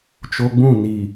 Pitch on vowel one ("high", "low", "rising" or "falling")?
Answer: low